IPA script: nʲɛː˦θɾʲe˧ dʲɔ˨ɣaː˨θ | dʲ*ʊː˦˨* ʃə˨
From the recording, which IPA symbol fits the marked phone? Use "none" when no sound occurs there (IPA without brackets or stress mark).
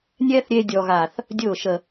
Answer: ʊː˦˨